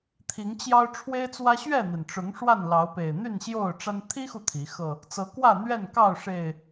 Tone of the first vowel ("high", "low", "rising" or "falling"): rising